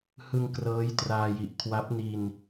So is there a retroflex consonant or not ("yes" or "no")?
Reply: no